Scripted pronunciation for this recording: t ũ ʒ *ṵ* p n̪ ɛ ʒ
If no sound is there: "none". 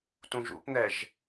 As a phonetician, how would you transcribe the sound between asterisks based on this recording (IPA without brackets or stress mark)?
ṵ